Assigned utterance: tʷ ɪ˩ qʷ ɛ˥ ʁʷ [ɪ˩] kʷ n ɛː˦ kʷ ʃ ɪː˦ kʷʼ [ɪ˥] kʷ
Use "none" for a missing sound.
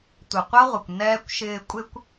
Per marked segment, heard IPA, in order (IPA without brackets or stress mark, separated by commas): ɪ˩, ɪ˥